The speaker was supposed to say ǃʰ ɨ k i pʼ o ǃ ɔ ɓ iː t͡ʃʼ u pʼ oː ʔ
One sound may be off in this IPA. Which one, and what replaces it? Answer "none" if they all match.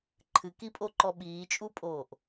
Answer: none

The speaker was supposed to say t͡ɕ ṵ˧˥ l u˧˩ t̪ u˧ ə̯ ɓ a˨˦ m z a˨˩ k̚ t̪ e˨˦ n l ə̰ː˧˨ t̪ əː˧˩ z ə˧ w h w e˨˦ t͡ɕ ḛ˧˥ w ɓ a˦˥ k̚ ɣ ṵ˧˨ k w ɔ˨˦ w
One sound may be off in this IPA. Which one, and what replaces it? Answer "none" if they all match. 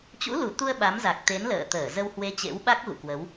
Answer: ɔ˨˦ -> ə˨˦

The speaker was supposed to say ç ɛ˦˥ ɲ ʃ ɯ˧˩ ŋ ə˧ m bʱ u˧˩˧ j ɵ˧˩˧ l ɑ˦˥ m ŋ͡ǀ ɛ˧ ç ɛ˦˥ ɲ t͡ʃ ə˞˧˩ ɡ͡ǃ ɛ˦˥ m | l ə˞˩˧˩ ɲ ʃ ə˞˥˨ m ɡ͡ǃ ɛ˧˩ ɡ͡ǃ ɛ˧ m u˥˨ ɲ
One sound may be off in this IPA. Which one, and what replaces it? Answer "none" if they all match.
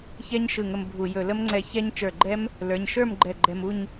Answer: ɑ˦˥ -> ə˦˥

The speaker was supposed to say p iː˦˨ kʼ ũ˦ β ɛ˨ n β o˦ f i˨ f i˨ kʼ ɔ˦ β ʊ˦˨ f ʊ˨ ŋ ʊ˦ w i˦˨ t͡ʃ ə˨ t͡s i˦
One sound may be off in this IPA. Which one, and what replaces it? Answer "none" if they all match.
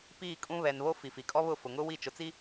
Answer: ə˨ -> ʊ˨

